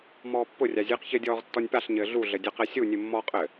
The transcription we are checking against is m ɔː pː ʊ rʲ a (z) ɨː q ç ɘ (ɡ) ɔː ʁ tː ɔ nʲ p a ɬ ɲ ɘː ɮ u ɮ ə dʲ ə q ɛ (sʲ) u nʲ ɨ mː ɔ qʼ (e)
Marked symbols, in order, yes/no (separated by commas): no, no, yes, no